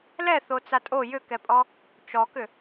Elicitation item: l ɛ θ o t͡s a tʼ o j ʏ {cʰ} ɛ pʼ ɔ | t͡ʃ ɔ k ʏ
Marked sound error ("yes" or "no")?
yes